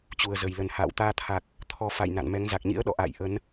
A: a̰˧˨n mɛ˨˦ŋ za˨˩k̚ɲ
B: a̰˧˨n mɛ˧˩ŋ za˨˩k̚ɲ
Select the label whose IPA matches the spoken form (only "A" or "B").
A